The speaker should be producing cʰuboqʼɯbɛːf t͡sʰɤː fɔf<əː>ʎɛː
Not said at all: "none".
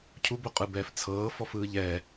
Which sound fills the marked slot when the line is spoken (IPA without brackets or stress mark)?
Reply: ɯː